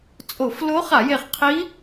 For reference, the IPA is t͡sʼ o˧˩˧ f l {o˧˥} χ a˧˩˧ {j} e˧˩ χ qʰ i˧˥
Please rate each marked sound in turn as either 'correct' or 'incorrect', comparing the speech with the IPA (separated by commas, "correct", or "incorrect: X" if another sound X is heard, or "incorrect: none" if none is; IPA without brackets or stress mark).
correct, correct